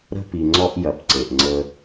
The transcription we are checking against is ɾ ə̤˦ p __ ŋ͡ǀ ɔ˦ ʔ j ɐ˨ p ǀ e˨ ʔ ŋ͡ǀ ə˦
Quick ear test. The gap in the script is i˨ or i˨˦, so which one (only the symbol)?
i˨